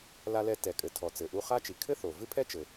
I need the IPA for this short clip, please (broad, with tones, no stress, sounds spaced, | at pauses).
l a˧ l ɛ˧ t ɛ˩ kʼ ɘ˩ tʰ ɔ˩ t͡s ɘ˩ ʔ u˧ χ a˥ t͡ʃ i˩ kʰ ɘ˥ θ o˩ v ɨ˥ pʰ ɛ˥ t͡ʃ ɘ˩